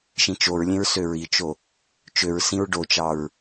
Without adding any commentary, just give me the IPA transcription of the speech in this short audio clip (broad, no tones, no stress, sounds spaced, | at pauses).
ʃ ĩ t͡ʃ o ɹ lʲ ẽ ɹ s ø ɹ i t͡ʃ o | t͡ʃ ø ɹ s ĩ ɹ ɖ o t͡ʃ ɑ ɹ